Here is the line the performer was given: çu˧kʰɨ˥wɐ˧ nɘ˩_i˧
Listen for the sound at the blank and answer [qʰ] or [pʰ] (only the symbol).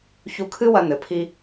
pʰ